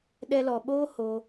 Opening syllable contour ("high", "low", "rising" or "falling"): high